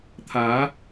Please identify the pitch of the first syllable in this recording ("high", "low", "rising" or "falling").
rising